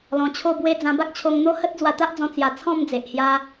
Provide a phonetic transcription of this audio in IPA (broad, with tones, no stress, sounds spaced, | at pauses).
l ɔ̃˧ t͡ɕʰ o˥˧ b w e˦ d͡z ã˧ b a˦ k̚ t͡ɕʰ o˧ ŋ n̪ o˦ h ə˦ t̚ d͡z w a˧ t̪ a˦ ʔ d͡z ɔ̃˧ t͡s j a˧ t͡sʰ ɔ̃˥˧ m d͡z e˨ ʔ h j a˧